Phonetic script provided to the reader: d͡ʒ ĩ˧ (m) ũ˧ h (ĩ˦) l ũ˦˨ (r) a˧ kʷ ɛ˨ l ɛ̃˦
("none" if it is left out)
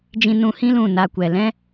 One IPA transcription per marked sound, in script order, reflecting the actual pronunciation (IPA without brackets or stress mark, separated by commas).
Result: n, ĩ˦, n